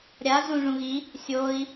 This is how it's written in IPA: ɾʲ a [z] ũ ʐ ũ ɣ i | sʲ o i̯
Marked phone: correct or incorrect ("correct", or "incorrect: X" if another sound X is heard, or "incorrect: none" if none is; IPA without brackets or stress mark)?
correct